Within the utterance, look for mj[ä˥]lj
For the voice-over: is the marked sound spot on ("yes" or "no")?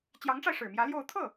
no